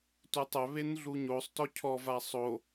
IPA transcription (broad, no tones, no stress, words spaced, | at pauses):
tutˤœ βenɮuɲosˤ tɔcʰɔ vasˤo